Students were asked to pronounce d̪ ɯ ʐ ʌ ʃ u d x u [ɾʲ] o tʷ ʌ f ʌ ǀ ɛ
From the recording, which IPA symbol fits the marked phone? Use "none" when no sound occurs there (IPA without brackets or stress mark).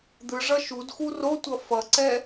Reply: r